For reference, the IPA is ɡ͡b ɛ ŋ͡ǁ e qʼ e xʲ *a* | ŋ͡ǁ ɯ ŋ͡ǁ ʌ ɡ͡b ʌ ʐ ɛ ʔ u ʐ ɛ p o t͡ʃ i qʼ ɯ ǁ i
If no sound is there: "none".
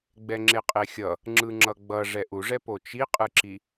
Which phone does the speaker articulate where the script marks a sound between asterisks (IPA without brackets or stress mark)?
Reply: ʌ